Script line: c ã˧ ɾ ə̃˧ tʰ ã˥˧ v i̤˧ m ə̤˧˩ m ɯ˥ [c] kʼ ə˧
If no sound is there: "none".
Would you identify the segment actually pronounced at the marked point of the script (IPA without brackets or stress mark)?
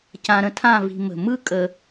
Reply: none